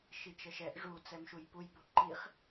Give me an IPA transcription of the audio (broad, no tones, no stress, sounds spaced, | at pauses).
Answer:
ʃ i t͡ʃ ə ʃ ɛ ʔ ʐ u t͡s ɛ m ʃ u j p u j b u ǃ i χ